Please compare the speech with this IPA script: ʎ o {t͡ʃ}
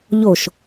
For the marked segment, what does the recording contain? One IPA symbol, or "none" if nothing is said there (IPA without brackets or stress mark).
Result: ʃ